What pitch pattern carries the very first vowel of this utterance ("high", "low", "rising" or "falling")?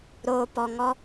low